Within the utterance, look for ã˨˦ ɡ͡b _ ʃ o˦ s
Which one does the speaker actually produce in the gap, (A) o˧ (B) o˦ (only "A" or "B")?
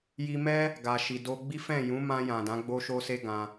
B